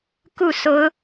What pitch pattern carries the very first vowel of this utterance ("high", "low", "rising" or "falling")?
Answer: falling